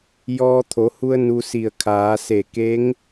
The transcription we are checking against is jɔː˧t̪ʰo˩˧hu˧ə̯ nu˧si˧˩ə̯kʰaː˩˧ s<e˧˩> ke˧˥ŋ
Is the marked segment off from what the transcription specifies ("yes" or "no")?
no